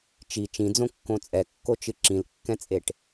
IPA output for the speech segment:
t͡ʃi t͡ʃĩd͡zõkːõ t͡sʼɛkːot͡ʃɨ ǁĩlkːɛ̃t͡sʼeʈ

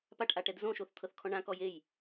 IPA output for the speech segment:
paʈʔaʈɛd zõʃoθt̪ʰɤθkʰɔ̃ ɳãkɔj ej

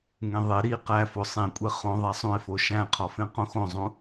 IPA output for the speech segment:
ŋẽðˤe ɾi qæfo sˤĩkʷʼe χõ ðˤæsˤũɪ̯fo ʃæ̃qʰɒfẽ qõxõzˤũ

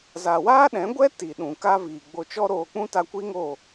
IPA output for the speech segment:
za˨waː˦ɗɛ̃˨˦ɡʷɛ˦ ti˨ ɗũ˨ka˦viː˨ɡ͡bo˧ t͡ʃɔ˦ɾoː˧k͡pũ˦ ta˧kʷi˦ŋo˦˨

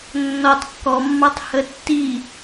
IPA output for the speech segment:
nːɔtˤ kːɔmːɑtˤhə tːi

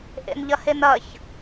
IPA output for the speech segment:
ʔḛnʎɐhenɐç

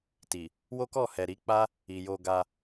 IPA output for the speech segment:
ti˨ | wo˦kɔ˦˨hɛ˨ ɾi˨˦k͡pa˦ | i˨jo˧ɡa˧

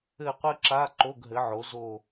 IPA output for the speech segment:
ɘ˦˨qʷɘ˥ǁa˧˥˧ ǃo˧˥˧ɡɦɘ˩˥ ʕo˩˥zo˦˨

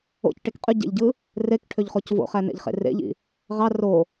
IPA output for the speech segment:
o̰cʈek qʼyɟḛʎɟɯ | rekʈʰøʎχoc vo̰χænḛʎχḛ rḛʎḭ | ʁɑ ro

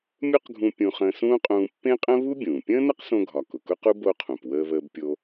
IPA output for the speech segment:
mʲu˥qɡʱũ˧ pʲũ˧χə̃ː˧sũː˥qʼũː˧ pːẽ˥qʼə̃˥ βu˥bʲũː˩ pʲə̃ː˥nə˥qsõ˧ɡʱɒ˩ kʊ˩kʊ˥qu˥ bo˧qʰũ˩p wəː˧βəː˧bpʲo˧

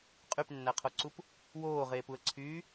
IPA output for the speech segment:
qʼypnːæqʰoǀup | woːʁeːpuə̯ǀʰyː

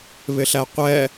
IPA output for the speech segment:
βɪɬæqʷɛ

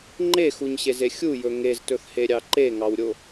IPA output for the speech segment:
ŋ͡ǃexuɲɕeze xʲujɵ ŋeztɵθheɾʲɑ ǃeŋɑwɾʲo

